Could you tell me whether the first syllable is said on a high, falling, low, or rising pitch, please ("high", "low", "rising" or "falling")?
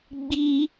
high